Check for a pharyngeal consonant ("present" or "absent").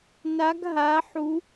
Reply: present